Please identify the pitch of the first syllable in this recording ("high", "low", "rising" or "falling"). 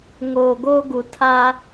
low